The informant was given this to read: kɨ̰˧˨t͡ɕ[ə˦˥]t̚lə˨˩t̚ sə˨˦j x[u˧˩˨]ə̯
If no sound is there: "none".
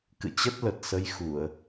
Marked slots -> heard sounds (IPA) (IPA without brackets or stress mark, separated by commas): ə˦˥, u˧˩˨